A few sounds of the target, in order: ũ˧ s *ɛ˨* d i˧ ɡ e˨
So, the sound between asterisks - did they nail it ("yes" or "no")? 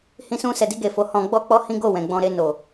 yes